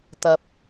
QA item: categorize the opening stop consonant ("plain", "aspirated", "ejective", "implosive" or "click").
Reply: plain